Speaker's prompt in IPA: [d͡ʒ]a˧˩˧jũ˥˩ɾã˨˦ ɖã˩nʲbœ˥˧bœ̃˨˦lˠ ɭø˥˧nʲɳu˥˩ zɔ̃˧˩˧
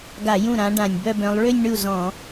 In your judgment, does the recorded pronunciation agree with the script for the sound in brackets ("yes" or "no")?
no